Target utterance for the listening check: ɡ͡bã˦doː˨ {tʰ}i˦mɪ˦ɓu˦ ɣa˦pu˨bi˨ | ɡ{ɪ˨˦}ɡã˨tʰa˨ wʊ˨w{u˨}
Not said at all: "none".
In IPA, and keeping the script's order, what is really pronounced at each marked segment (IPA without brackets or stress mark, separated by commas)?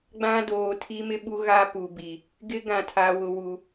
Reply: tʰ, ɪ˦, u˨